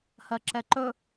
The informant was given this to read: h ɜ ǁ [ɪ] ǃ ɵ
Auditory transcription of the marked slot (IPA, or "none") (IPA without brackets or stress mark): ɛ